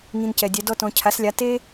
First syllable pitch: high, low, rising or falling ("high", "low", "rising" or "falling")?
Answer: low